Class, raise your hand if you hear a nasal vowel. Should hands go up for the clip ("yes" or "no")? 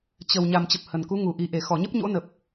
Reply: no